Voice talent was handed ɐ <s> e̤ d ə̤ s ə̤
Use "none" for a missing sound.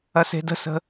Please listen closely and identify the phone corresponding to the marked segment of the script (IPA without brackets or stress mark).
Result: s